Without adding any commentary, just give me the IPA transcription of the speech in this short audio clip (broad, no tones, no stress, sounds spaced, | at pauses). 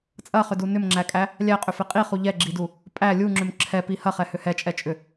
t͡sʼ ɐ χ ʏ d u n ʏ m ŋ͡ǁ æ kʼ æ | lʲ æ qʼ ʏ f e qʼ i χ u ʎ ɛ ɡ͡ǁ i d u | pʼ æ lʲ u ŋ͡ǁ ʏ m ǁʰ ɛ p i h ɐ χ ɛ h ʏ h ɛ t͡ʃʼ ɛ t͡ʃʼ ʏ